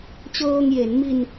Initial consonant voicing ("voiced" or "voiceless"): voiceless